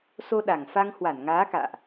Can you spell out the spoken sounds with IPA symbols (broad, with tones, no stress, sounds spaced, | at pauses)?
s o˧ ɗ a˨˩ ŋ f a˧ ŋ h w a˧˩ n ŋ aː˨˦ k a̰ː˧˨ ʔ